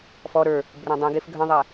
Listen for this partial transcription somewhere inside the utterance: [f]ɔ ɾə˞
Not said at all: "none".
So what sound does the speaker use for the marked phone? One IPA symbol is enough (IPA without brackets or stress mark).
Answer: f